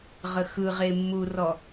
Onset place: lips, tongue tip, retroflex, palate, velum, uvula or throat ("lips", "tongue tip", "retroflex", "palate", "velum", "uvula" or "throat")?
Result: uvula